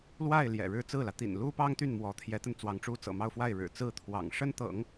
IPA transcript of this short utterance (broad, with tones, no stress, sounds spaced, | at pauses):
l w a˥˩ ɪ̯ l j ɛ̰˨˩ ɻ ɻ̩˥˧ t͡s ɹ̩˥˩ l ä˩ t̪ ḭ˨˩ n l u˥ p ɑ˥ ŋ t̪ y˥˩ n m w ɔ˧˥ t̪ʰ j ɛ˧˥ t̪ ə˧ n t͡s w ɑ˧˥ ŋ ʈ͡ʂ u˥ t͡s ɤ̰˨˩ m ɑ˥˧ ʊ̯ f w a˥˩ ɪ̯ ɻ ɻ̩˨˩ t͡s ɹ̩˥˩ t̪ʰ w ɑ̰˨˩ ŋ ʂ ə˥ n t̪ ɤ̰˨˩˦ ŋ